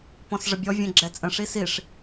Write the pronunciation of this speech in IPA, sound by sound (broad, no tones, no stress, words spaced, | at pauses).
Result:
pɔ̃sʐəbʲɔ vʲɛ̃ɡ͡ǁɛt͡sʼə̃ ʂisiʂ